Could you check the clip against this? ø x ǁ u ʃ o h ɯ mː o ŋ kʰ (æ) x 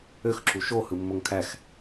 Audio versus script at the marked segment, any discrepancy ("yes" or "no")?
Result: no